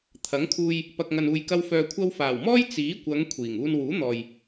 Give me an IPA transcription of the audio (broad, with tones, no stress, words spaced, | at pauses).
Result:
t̪ʰɐ˨˥ŋkʰuː˧j | pɐ˨k̚ŋɐ˨n uː˨j kɐ˧wfœː˨ kʷʰɐ˧wfaː˨˩wmɔː˥j t͡siː˨˥kʷɐ˨˧ŋ kʷʰiː˨˩ŋ uː˧nwuː˨˥n̪ɔː˨j